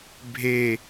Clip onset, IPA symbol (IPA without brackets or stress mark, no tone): bʱ